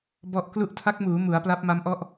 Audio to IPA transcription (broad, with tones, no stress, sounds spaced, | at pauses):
b ɔ˦˥ ʔ k l u˦˥ ʔ tʰ a˦˥ k̚ m uː˩˦ m u˩˦ a̯ p l a˦˥ p̚ m a˦˥ m ʔ ɔ˥˩ ʔ